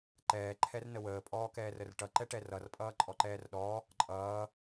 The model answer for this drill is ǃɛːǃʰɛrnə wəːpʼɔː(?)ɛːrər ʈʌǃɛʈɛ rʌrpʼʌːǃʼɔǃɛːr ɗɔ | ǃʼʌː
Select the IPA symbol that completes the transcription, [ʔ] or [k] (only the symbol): k